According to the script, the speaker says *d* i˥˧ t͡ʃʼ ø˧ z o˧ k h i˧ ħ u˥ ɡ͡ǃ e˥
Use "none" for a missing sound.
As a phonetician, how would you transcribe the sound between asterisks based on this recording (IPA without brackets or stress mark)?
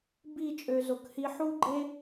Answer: b